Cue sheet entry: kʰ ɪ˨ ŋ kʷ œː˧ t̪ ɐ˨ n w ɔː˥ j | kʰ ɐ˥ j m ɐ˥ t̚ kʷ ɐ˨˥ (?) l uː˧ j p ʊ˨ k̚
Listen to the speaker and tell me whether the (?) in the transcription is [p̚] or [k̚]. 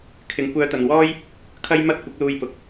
k̚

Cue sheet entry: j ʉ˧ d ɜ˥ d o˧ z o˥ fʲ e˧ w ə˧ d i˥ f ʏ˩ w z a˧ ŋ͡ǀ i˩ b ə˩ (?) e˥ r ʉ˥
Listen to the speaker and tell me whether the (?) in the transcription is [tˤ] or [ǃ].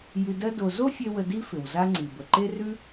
ǃ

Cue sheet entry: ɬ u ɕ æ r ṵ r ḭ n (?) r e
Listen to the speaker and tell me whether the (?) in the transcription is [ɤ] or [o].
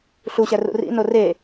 o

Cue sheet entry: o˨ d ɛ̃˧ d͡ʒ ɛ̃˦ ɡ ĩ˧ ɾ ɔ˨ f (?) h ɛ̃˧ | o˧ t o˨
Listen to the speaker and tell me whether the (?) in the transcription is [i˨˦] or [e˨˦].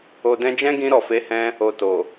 e˨˦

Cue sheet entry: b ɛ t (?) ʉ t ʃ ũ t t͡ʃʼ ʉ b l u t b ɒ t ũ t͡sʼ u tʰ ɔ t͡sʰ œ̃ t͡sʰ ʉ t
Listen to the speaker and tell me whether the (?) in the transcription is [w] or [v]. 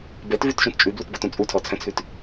v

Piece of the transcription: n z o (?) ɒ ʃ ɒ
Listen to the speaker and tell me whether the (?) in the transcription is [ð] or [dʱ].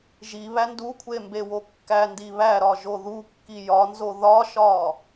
ð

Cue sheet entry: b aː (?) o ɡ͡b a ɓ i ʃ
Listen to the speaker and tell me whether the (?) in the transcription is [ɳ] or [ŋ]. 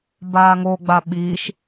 ŋ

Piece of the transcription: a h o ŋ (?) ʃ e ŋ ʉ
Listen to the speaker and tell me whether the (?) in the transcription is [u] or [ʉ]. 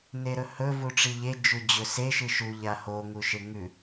u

